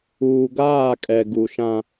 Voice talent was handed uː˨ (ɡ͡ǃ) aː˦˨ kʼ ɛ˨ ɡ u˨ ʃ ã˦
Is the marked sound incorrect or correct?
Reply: incorrect